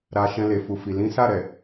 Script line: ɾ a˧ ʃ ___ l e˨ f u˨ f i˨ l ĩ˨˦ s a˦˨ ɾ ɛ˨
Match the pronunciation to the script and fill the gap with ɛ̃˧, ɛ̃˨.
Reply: ɛ̃˧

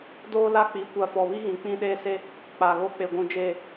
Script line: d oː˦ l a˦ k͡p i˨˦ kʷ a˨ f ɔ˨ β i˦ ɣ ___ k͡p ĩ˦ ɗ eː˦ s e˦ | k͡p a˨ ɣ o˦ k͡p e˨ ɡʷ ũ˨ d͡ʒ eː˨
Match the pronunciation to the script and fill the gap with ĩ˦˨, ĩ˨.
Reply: ĩ˨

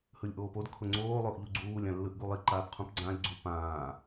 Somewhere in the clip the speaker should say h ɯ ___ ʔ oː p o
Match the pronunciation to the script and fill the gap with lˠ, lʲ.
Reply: lʲ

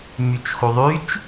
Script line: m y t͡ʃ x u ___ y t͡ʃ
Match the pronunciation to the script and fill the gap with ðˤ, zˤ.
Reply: ðˤ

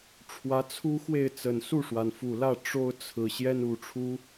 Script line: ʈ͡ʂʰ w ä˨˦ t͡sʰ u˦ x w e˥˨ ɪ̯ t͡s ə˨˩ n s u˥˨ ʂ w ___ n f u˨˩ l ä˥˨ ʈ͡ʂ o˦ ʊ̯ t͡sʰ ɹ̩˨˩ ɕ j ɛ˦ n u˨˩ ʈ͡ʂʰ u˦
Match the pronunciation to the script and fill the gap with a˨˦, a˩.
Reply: a˩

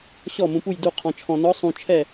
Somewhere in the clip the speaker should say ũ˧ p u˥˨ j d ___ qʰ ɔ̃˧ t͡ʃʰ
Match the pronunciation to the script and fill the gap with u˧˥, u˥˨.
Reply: u˥˨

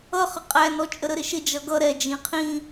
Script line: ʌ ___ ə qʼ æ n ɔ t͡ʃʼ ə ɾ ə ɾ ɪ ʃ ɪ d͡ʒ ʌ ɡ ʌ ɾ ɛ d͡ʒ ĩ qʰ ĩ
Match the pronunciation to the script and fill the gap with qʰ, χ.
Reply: χ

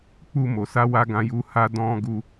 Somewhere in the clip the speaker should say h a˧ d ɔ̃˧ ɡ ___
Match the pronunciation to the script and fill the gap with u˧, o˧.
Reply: u˧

